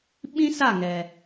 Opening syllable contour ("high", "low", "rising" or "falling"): high